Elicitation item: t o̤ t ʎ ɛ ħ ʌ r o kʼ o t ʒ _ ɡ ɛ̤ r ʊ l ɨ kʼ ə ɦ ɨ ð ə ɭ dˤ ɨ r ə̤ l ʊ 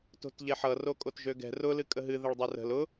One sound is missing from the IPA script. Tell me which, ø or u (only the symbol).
ø